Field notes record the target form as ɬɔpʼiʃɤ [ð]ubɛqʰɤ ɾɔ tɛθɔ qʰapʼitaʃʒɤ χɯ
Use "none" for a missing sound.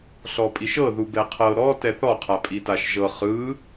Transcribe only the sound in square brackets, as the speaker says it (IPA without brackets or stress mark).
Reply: ð